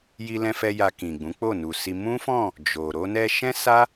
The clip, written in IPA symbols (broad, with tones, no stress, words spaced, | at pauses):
ji˧lɛ̃˧fɛ˧ ja˧kĩ˨ɡ͡bũ˨˦ k͡po˦˨nu˨si˧ mũ˦fɔ̃˦˨ | d͡ʒo˨ ɾo˧nɛ˧ʃɛ̃˦ sa˦